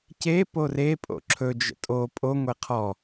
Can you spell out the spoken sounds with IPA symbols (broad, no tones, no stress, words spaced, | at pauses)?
ce pore pʼo̰ǁʰɵ d͡ʒə̰tʼo pʼo ŋʷeqʰɔ